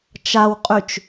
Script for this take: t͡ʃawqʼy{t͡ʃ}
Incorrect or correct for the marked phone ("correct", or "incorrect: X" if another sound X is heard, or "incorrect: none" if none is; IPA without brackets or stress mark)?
correct